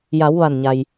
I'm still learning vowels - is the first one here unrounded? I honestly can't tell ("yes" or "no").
yes